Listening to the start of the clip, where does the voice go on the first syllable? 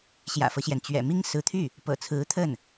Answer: low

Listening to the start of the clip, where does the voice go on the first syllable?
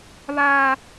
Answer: high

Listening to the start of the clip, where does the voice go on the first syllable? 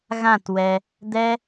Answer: falling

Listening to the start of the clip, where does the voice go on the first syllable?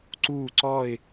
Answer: falling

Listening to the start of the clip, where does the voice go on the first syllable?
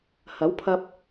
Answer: rising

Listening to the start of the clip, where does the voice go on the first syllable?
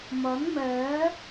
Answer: rising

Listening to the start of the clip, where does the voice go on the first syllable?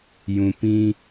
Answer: low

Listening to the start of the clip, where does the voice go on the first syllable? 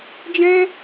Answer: high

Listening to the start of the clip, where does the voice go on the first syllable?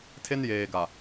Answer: high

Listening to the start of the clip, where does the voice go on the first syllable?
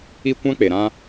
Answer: high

